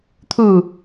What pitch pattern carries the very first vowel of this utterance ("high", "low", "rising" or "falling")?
falling